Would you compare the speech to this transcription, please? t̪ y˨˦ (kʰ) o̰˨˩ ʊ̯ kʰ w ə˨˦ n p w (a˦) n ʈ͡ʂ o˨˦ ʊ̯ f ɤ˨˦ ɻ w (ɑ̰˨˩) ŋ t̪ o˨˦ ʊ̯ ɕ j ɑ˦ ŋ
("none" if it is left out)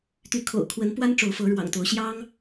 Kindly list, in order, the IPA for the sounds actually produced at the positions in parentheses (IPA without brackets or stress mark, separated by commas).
kʰ, a˦, ɑ̰˨˩